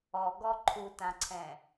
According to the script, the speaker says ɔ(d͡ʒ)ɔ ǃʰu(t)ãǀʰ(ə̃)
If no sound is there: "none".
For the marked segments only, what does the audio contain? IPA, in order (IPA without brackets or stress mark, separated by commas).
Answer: ɡ, t, ɛ̃